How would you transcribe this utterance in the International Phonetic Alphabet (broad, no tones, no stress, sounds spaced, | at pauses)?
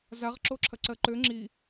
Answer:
z a ʁ ǁ o ǁʰ ɐ ǀ ɜ ǃ ø ŋ͡ǁ i